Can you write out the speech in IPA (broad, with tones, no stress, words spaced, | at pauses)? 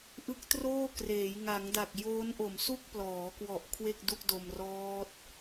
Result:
ʔɯ˦˥k̚troː˥˩kreː˩˦j ŋa˩˦ŋda˨˩k̚ joː˦˥nʔo˨˩m su˥˩k̚plɔː˩˦kwɔ˨˩ʔ kʰwe˥˩k̚du˥˩k̚do˧mrɔː˦˥t̚